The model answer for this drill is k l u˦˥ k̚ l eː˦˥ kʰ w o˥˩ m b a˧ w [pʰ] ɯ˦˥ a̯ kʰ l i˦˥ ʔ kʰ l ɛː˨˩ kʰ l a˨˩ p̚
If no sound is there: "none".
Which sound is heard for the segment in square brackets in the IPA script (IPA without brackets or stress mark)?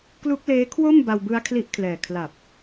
b